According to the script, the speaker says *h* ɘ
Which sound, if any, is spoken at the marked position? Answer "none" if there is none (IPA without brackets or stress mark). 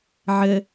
ʕ